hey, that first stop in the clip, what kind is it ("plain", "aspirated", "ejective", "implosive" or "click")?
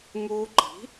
click